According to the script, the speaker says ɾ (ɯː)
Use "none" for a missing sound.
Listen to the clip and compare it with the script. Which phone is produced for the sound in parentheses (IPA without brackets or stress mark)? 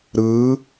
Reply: ɯː